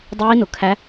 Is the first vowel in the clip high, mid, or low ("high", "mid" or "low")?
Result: high